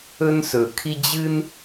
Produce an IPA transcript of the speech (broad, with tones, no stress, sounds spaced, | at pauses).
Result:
ɵ˦ n s ɵ˨˩ kʰ i˦ d͡ʑ ɨ˦ n